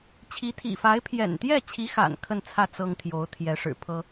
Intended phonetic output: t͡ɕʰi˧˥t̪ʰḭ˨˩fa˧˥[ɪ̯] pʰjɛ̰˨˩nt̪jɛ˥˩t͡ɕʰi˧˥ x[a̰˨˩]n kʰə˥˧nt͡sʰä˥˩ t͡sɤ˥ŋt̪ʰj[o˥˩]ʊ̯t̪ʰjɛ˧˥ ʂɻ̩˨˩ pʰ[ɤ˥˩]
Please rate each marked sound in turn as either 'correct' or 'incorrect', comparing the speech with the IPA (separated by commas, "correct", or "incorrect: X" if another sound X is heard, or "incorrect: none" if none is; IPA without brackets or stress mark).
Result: correct, correct, incorrect: o˧˥, incorrect: ɤ˥